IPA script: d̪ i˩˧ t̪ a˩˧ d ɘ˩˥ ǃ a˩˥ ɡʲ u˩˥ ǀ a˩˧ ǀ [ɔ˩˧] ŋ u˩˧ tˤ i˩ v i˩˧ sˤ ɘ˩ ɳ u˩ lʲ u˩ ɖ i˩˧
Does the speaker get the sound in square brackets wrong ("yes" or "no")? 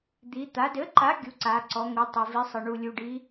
no